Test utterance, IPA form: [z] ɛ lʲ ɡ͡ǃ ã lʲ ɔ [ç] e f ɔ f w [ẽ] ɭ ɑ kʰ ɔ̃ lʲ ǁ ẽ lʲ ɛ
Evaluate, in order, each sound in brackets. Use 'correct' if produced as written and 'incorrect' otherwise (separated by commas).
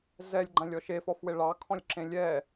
correct, incorrect, incorrect